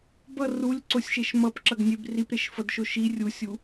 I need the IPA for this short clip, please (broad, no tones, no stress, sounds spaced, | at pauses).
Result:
b ʌ r u lʲ ǀ o sʲ ʃ e ʃ m ʌ p ǁ ʌ ɡ nʲ e b r i p ɾ e ʃ f ʌ d ʃ o ʃ i rʲ u sʲ u